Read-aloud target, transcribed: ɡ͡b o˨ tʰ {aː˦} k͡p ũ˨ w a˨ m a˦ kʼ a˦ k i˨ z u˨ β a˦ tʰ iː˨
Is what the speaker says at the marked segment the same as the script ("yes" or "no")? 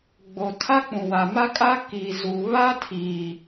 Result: no